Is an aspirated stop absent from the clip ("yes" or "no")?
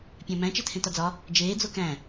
no